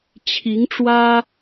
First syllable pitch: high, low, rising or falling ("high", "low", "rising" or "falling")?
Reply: rising